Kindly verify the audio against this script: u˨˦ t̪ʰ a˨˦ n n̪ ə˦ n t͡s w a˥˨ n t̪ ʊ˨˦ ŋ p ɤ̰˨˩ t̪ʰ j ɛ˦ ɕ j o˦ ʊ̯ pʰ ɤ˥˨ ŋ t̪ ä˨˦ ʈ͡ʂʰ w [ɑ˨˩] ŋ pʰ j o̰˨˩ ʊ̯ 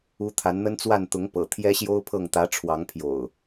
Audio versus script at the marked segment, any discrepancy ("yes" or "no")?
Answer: yes